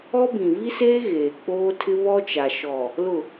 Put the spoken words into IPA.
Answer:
ɔ˦ b ĩ˨ v i˦ s eː˦ ɣ eː˨ k͡p oː˦ tʰ ɪ˦ β ɔ˦ t͡ʃ a˨ ʃ ɔ˨ | l ʊ˨

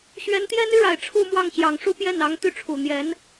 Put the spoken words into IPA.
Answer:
ɕ ɥ ɛ˧˥ n t̪ j ɛ˥ n y˥ ɻ a˨˩ ɪ̯ ʈ͡ʂʰ u˥˧ m w ɑ˥˩ ŋ ɕ j ɑ˨˩ ŋ ʂ u˥ p j ɛ˥˩ n ɑ˧˥ ŋ t̪ y˥˩ ʈ͡ʂʰ u˨˩ n̪ j ɛ˧˥ n

